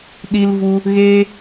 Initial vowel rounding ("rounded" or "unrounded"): unrounded